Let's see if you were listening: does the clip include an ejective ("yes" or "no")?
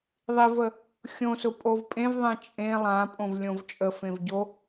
yes